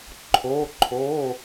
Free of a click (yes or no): no